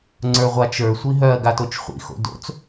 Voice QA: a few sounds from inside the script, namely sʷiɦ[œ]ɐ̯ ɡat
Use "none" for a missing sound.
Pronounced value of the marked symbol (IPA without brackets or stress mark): œ